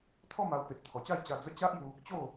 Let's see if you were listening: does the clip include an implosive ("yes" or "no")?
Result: no